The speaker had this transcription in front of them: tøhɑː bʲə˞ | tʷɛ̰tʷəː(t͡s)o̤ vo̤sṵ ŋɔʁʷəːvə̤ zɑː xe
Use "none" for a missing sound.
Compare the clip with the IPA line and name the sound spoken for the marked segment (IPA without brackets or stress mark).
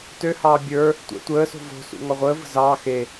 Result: s